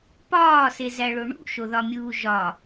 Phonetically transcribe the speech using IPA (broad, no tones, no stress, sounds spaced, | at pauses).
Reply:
p ɒː s e z æ ɭ o ɳ ṵ ʃ o ð ɒ mʲ uː ʒ ɒ